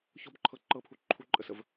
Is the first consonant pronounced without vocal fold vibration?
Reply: yes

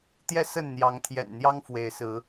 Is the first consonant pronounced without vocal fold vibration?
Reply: yes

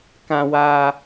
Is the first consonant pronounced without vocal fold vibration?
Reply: yes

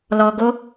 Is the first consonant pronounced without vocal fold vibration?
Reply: no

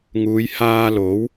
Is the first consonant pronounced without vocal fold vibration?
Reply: no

